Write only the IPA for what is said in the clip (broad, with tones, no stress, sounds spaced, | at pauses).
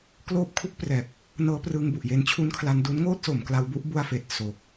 k l oː˦˥ p̚ kʰ u˦˥ k̚ p r ɛː˨˩ p̚ | n ɤː˦˥ p r ɯː˧ ŋ b u˨˩ ʔ j e˧ n t͡ɕʰ u˦˥ n kʰ l a˧ n d u˦˥ n ŋ oː˥˩ t̚ s o˩˦ m k l a˧ w b u˦˥ ʔ b u˧ a̯ f eː˨˩ t̚ s o˨˩ k̚